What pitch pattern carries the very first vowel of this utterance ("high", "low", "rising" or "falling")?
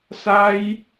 high